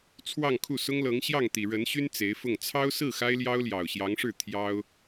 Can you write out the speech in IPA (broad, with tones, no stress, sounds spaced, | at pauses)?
t͡sʰ w ɑ˥˧ ŋ kʰ u˥˩ s ʊ˥ ŋ l ɤ˧˥ ŋ ɕ j ɑ˥˩ ŋ t̪ i˨˩ ɻ ə˧˥ n ɕ y˥ n t͡s e˧˥ ɪ̯ f ʊ˥˩ ŋ t͡sʰ ɑ˥ ʊ̯ s ɹ̩˥˩ x a˥ ɪ̯ l j ɑ˥ ʊ̯ l j ɑ˨˩ ʊ̯ ɕ j ɑ˧˥ ŋ ʂ ɻ̩˥˩ t̪ʰ j ɑ˥ ʊ̯